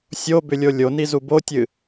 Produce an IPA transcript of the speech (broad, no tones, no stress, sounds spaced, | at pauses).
sʲ o b ʏ lʲ o lʲ o n i z u b o tʲ ɨ